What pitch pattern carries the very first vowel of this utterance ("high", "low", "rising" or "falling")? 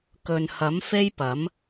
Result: low